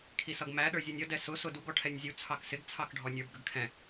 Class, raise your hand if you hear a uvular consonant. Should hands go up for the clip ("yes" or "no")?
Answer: no